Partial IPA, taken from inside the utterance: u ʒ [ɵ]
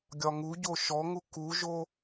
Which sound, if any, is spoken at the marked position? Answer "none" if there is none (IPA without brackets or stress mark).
o